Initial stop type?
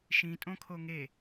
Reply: ejective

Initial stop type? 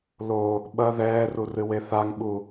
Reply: implosive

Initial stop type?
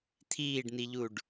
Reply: aspirated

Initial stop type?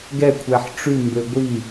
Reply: plain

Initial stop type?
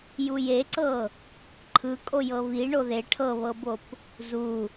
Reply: click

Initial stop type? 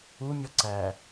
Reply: click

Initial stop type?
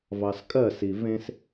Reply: ejective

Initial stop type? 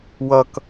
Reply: plain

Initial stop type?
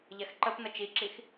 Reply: click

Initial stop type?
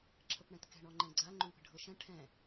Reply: click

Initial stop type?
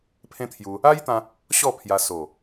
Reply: aspirated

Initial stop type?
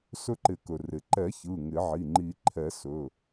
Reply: click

